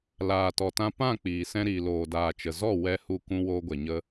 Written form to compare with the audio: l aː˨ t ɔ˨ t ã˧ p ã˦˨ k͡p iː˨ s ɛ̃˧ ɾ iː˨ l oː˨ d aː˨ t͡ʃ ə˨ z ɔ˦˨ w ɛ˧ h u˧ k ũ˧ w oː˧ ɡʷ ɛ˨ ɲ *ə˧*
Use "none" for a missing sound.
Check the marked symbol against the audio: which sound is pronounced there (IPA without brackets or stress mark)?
ə˧